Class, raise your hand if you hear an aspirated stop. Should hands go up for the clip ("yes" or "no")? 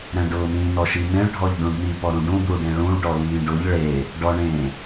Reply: no